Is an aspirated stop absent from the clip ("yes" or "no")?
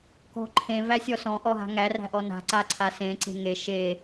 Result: no